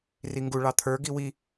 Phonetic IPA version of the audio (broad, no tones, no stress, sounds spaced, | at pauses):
r i ŋ ɡ u ɭ ɑ t̪ʰ ə˞ ɡ i w i